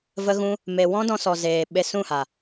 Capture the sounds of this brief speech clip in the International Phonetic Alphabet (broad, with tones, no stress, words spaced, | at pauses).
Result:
və˦ɣũ˦ | me˧ wɔ̃˦dɔ̃˧sɔ˨ zeː˨ ɓe˧sũ˦˨ha˨